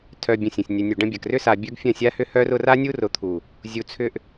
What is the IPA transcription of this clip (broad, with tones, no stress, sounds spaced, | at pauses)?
tʰ œ˨ bʲ ɐ̃˨ sʲ ɐ̃˨ sʲ nʲ œ˨ nʲ u˨ ɖ ɐ̃˧ bʲ ɐ˨ k r ʏ˧ s a˨ bʲ œ˦ ɡ fʲ ɐ̃˦˨ sʲ a˧ h ʏ˧ h œ˧ r ʊ˧ r a˦ nʲ u˦ r ʊ˨˦ t̪ʰ u˨ | zʲ u˨ t͡sʰ ʏ˧ ʔ